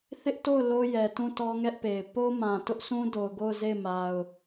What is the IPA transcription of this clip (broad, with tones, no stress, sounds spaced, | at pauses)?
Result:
θ ɪ˦ ʔ t o˦˨ ʊ̯ l o˦ j ɛ˨ t ũ˦˨ t ɔ˦ ŋ ɛ˦ ʔ p e˨ ɪ̯ p o˦ m ã˨ t ʊ˦ ʔ s ũ˦ d o˨ ʊ̯ ɡ o˦˨ ʊ̯ z e˦˨ ɪ̯ m a˨ ʊ̯